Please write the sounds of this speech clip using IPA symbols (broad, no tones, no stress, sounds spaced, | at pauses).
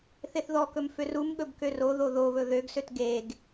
θ e θ ð ɔ k ɵ m f ø r u m ɠ ɵ b k ø r o ð o ð o β ɵ ð ø ɡ s ø t ɡ e ɡ